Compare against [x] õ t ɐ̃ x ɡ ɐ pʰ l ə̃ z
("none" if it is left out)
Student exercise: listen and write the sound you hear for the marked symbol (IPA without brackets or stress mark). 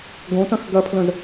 ɡ